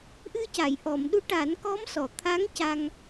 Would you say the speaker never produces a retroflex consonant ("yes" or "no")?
no